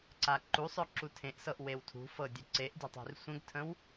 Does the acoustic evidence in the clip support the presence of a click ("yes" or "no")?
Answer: yes